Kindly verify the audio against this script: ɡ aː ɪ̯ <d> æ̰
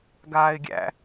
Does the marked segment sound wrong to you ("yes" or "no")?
yes